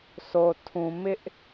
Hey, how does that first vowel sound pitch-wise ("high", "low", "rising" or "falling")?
low